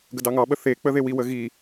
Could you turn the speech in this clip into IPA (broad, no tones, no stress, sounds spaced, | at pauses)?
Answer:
ɡ ə d ɑ ŋ ɑ ɓ ə θ e k͡p ə ð e w i w ə ɣ i